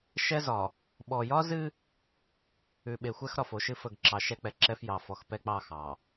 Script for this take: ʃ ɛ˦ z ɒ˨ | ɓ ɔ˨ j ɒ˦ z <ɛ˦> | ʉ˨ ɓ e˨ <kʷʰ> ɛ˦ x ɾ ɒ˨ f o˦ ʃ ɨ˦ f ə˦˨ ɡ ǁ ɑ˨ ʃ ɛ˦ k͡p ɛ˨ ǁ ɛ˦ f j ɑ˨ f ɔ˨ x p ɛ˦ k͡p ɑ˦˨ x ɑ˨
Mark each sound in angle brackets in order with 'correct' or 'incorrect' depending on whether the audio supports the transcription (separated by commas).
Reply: incorrect, incorrect